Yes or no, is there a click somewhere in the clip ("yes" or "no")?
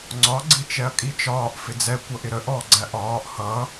yes